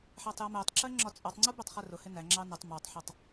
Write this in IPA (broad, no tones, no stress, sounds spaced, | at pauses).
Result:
ħ æ tˤ j ʌ m ɛ tˤ ǁ ɜ ŋ͡ǁ ɒ t͡sʼ ɔ tˤ ŋ͡ǀ u b ɛ tˤ χ ɛ r ʊ h ɪ n æ ŋ͡ǁ ɑ n ə tˤ m ɔ tˤ ħ ə tˤ